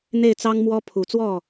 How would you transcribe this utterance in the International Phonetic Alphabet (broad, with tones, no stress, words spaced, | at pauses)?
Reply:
n̪e˥˩ɪ̯t͡sɑ˥ŋmwɔ˥ pʰu˨˩t͡swɔ˥˩